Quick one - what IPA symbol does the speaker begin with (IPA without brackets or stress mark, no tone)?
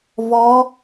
v